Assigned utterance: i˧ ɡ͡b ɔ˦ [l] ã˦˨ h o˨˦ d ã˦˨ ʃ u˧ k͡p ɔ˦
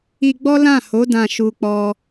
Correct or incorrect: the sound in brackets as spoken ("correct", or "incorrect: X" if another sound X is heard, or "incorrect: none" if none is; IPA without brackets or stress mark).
correct